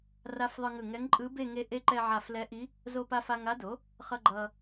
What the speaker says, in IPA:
r a˧˥ f ðˤ ɯ˧ ŋ ɯ˧˩ ŋ ɛ˧˥ ŋ ǃʼ ɯ˧˥ b e˥˧ ŋ e˧˥ ʔ e˧˥ ǃ ɛ˧ ʕ a˧˩ f l ɛ˧˥ ʔ i˧˥ | z o˧ p a˧ f a˧ ŋ a˧˥ d o˩˥ | χ ʌ˧ ɡ͡ǃ ʌ˧

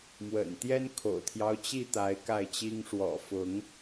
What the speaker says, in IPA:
m w ə̰˨˩ n t̪ j ɛ˦ n kʰ o̰˨˩ ʊ̯ t̪ʰ j ɑ˦ ʊ̯ t͡ɕ i˥˨ t̪ a˨˦ ɪ̯ k a˥˨ ɪ̯ t͡ɕ i˦ ŋ ʂ w ɔ̰˨˩ f ʊ˨˦ ŋ

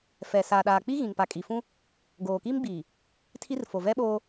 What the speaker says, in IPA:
f ɛ˨ s aː˨ ɗ aː˨ k͡p i˦ ɣ ĩ˨ ŋ p a˨ kʼ i˨ f ũ˦ | ɡ oː˨ k i˦ m ɡ͡b iː˨ | tʰ i˦ r f o˨ v ɛ˦ ɓ oː˦

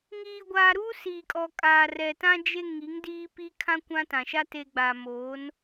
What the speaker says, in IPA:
ŋ iː˨ ɡʷ aː˨ ɾ uː˦ s iː˨ kʼ ɔ˨ kʼ aː˨ r ɛ˨ t ã˦ d͡ʒ e˦ ŋ i˨˦ ŋ d iː˦ p i˦ kʰ ã˦ kʷ ã˦ t ã˨ ʃ a˦ t e˨ ɡ͡b a˨ m oː˨˦ n

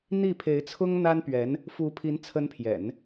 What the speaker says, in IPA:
n̪ i˥˩ pʰ e˧˥ ɪ̯ t͡sʰ ʊ˥ ŋ n̪ a˥ n p ɥ ɛ˧˥ n | f u˧˥ pʰ i˧˥ n t͡sʰ ə˧˥ n pʰ j ɛ̰˨˩˦ n

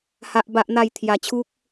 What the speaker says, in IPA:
h a˦ ʔ b a˦ ʔ n̪ a˥˧ j t̪ʰ j a˧ t͡ɕʰ u˦ k̚

